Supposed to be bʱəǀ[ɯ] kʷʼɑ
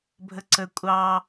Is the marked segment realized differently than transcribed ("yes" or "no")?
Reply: yes